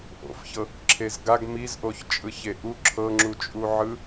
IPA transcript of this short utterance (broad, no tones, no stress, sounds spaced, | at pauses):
ʔ o̰ f ç ɤ | ǁʰ e z ɡ a ɡ m i z ʔ o ç t͡ʃʼ ɯ ç e ʔ u ǁʰ ɤ ŋ͡ǁ u t͡ʃʼ u ʕ ɯ